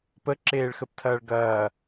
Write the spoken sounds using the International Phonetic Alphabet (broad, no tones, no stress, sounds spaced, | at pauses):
p ə ǁ eː ɭ x ə p tʰ ɐː ɭ ɡ ɐː